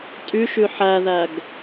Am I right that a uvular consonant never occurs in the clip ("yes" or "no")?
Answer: yes